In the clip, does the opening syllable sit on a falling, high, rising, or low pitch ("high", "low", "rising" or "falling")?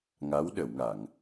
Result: rising